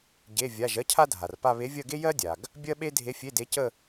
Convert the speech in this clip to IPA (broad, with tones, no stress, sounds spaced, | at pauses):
ɟ e˧˥˧ vʲ a˧˥˧ ʒ ɜ˥ cʰ a˥ dʱ a˨ r p a˥˧ β e˧˥ vʲ ɜ˥˧ ɡ e˥ j ɜ˥ dʲ a˨ ɡ | bʲ ɜ˥ ɓ e˥ dʱ e˧˥ fʲ e˧˥˧ d e˧˥ c ə˥˧